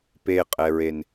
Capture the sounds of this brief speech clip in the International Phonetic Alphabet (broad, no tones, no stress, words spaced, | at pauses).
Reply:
peqʼɛɹen